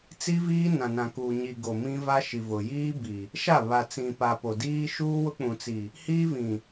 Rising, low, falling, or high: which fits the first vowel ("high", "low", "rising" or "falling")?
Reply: high